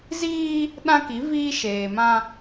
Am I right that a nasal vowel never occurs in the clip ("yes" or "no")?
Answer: no